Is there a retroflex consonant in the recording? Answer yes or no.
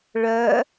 yes